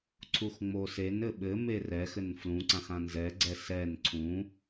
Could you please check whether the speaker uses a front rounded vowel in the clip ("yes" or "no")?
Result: no